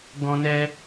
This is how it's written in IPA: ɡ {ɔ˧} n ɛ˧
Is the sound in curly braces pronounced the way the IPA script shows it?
no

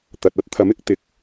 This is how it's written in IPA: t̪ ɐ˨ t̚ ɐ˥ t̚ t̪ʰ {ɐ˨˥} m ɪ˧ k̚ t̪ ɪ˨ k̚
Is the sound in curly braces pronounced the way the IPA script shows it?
yes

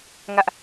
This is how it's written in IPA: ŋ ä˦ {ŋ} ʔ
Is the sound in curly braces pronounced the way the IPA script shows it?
no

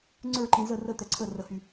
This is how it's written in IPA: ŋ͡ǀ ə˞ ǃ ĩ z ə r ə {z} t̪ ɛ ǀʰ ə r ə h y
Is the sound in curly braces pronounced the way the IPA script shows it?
no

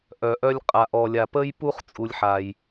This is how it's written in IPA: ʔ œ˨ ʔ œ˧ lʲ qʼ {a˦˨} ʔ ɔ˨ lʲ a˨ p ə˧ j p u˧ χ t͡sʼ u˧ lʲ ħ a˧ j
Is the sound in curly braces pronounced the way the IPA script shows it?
no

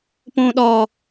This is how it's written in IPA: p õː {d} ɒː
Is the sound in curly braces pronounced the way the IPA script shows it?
no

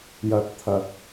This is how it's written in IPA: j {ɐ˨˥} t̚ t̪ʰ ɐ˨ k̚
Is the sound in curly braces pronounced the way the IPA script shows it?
no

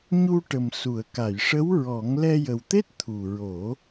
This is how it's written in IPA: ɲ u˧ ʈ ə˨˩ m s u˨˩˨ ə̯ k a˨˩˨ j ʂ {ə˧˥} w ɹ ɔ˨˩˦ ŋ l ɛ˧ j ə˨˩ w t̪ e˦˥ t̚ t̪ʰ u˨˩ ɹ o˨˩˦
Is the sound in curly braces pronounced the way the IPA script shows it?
yes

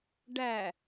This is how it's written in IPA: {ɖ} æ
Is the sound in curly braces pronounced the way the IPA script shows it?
yes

